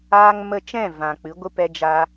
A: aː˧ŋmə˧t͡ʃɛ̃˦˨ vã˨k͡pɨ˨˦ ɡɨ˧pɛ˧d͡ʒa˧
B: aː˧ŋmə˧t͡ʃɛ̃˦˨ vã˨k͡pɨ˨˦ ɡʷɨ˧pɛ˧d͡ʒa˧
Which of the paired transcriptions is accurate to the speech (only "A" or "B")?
B